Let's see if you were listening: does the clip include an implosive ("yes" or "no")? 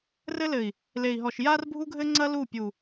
no